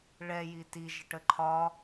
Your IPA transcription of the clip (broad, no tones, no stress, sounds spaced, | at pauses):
ɭ ɛ j i t i ʒ ə ʈ ə ǃʰ ɒ